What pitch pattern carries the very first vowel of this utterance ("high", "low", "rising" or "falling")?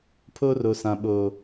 high